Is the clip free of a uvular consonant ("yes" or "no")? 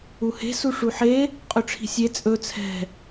no